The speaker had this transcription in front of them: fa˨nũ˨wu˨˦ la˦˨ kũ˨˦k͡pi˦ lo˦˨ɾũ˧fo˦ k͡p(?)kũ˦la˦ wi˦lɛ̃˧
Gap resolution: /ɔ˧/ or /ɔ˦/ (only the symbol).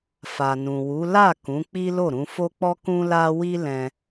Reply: ɔ˦